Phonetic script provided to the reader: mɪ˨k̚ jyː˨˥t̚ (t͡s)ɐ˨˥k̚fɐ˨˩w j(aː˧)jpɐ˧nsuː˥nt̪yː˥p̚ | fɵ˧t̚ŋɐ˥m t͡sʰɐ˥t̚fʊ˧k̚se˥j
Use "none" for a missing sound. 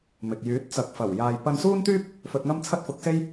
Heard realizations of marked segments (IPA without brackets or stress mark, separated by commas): t͡s, aː˨